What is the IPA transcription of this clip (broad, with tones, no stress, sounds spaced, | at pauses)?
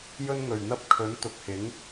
j ɵ˧ n ŋ ɵ˨˩ ɥ n̪ ɐ˧ p̚ kʰ ɵ˨˥ n t̪ ʊ˨ k̚ h ɪ˨˥ ŋ